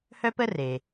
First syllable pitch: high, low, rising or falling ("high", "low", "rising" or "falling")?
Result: high